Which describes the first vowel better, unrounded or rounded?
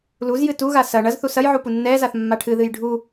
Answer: rounded